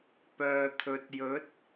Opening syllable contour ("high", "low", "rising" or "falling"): low